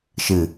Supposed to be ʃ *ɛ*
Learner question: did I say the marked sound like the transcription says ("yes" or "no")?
no